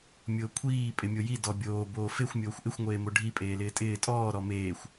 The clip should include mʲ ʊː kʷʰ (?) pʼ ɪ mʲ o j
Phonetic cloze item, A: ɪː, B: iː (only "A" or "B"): B